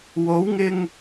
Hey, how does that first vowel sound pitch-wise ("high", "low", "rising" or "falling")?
rising